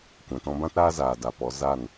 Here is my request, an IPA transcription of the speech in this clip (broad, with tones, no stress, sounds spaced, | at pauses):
kʷ ɛ̃˨ t ɔ̃˧ b ã˦ t ɾ aː˦ z aː˨ d a˨ p ɔ˨˦ z a˦˨ n